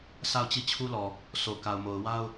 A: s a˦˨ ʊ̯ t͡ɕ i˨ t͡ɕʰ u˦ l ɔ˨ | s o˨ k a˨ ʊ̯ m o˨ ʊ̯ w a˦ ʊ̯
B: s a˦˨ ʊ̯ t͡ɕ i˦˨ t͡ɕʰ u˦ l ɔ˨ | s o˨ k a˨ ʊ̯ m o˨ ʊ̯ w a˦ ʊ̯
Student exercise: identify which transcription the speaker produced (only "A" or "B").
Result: B